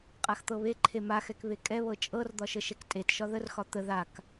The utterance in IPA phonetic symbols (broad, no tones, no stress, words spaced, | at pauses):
qʼaxt̪ɤβeǃʰe maxɛk βekʼɛβɤ t͡ʃʼɤrd̪ɒ ʃəʃɛktʼetʃɒ ðərxɒ t̪ə ðak